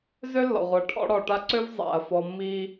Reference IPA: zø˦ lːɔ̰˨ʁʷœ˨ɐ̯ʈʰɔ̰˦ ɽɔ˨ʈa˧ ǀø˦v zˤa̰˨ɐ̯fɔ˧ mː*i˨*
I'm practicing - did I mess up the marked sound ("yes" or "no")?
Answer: yes